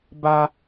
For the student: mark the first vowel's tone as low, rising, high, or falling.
low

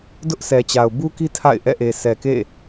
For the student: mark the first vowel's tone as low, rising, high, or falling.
high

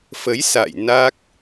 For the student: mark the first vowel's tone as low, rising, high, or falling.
rising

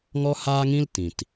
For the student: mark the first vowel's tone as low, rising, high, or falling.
high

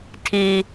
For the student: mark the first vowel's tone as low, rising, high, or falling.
high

